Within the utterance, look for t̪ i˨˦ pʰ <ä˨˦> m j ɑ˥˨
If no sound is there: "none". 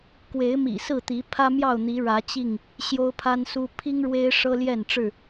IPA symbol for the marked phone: ä˦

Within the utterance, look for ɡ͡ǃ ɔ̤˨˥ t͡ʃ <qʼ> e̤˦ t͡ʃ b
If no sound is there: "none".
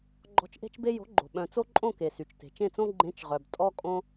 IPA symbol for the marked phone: ʔ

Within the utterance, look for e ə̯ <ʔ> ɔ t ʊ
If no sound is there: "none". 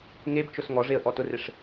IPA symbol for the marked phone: ʔ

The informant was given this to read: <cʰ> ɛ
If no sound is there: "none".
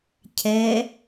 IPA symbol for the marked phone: cʰ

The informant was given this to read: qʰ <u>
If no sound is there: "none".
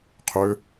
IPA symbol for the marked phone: ø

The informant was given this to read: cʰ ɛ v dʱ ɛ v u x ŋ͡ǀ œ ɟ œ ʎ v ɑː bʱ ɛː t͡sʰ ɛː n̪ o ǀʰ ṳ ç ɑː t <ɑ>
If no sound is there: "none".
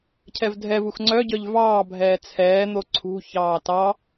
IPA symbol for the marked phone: ɑ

